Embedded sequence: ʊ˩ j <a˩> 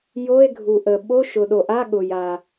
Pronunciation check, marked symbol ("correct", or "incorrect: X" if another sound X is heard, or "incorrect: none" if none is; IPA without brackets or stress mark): correct